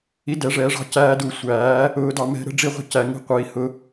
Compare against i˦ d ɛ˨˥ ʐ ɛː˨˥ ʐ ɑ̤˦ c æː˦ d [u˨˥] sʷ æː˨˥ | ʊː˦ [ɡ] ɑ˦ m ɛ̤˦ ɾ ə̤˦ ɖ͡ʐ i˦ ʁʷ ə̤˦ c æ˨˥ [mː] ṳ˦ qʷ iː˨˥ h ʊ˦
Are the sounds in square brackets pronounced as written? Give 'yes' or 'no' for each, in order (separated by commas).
yes, no, no